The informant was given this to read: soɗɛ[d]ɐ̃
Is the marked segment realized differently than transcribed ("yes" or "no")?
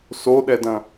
no